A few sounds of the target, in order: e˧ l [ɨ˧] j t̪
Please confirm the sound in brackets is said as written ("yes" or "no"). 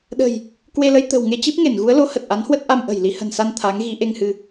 no